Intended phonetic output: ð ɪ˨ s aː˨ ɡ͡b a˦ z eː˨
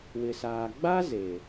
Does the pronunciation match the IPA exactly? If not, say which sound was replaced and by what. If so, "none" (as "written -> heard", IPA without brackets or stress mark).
ð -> w